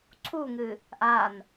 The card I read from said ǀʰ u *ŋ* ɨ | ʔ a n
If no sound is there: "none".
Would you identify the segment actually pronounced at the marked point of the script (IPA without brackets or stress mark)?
ŋ